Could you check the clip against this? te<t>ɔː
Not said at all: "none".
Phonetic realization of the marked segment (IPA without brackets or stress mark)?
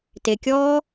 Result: kʲ